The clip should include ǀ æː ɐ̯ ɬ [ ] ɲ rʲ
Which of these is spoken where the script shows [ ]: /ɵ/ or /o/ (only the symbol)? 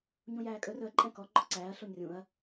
o